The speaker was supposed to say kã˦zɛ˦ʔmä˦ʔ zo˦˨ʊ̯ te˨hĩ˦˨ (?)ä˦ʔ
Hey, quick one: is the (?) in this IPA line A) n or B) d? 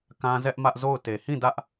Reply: B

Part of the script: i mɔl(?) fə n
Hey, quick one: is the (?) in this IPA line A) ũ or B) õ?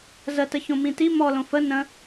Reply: B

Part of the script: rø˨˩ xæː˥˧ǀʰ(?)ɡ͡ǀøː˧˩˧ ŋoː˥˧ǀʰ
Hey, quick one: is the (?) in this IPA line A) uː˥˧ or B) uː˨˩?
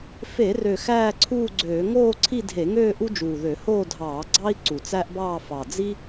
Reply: A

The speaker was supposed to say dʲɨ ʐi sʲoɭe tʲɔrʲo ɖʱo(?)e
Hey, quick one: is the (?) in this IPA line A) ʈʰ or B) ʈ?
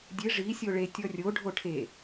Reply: A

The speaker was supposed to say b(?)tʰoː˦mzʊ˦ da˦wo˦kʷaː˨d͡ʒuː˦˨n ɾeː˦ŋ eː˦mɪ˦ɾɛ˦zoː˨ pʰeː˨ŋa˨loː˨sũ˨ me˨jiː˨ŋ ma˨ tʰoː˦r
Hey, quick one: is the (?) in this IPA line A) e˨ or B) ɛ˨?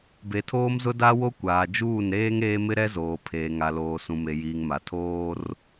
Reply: A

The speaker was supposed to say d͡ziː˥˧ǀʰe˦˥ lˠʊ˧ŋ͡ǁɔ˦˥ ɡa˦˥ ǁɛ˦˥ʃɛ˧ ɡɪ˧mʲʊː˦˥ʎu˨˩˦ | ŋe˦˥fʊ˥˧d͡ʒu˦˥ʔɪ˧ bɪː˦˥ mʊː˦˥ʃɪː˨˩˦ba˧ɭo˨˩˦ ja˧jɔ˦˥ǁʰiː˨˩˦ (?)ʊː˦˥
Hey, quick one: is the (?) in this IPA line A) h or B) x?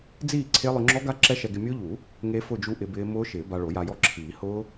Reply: A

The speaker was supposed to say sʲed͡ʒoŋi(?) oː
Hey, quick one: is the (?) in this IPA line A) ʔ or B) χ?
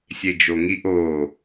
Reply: A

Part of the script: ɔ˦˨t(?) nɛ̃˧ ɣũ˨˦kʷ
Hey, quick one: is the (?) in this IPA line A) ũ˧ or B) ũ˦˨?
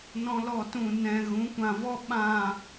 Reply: B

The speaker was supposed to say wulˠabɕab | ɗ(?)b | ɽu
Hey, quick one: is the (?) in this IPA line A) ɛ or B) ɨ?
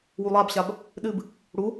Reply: B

